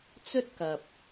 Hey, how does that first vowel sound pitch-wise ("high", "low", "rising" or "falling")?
high